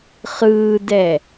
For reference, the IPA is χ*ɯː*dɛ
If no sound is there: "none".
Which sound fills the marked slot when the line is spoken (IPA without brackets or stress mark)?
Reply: ɯː